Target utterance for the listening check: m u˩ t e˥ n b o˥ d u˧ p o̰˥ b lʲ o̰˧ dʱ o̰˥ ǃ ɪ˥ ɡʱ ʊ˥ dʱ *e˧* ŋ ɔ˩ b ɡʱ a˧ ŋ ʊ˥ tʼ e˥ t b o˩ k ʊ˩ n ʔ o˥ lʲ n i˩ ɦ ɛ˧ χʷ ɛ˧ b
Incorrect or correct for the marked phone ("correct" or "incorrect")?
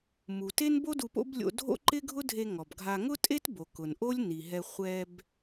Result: correct